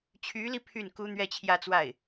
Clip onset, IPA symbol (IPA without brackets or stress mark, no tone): t͡ɕʰ